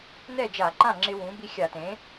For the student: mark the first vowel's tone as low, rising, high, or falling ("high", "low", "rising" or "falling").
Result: falling